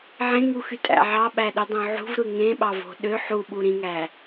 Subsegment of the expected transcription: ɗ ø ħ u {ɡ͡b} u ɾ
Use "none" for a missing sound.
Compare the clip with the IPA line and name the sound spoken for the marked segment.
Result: ɓ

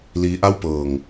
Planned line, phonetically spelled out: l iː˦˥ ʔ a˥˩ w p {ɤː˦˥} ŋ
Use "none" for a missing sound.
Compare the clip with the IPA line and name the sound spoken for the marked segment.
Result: ɤː˨˩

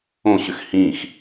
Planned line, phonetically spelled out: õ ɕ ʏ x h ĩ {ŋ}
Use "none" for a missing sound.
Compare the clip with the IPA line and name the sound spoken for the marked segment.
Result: x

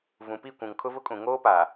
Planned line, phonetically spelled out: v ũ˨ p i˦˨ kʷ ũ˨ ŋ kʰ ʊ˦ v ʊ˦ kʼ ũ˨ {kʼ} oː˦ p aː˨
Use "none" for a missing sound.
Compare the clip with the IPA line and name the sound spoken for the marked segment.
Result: ŋ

